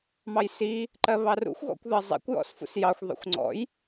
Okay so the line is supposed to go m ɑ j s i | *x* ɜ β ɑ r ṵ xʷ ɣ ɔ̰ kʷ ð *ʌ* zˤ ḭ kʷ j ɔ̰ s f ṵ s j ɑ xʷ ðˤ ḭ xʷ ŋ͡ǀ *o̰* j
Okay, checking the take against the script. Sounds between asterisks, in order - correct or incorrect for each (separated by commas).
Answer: incorrect, correct, incorrect